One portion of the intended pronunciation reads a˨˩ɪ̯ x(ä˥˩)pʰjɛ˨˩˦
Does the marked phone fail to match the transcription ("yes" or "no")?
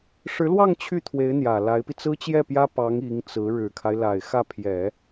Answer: no